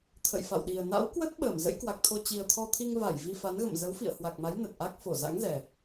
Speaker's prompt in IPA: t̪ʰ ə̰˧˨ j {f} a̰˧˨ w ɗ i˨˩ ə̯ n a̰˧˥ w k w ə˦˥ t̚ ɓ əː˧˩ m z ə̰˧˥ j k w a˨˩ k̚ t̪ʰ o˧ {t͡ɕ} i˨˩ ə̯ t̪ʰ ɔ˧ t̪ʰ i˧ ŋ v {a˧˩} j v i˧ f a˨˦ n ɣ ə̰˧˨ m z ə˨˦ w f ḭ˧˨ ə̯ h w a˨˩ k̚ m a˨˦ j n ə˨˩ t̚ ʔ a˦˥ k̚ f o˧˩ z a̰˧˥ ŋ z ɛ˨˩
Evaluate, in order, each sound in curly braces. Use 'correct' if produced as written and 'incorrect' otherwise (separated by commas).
correct, correct, correct